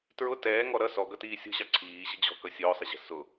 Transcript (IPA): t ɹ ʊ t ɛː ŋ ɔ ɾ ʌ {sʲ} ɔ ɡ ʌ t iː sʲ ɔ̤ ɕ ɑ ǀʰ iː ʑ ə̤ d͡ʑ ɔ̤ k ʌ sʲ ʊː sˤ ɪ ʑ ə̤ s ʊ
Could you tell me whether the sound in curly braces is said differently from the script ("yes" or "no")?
yes